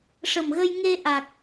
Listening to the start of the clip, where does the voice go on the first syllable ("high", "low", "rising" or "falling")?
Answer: low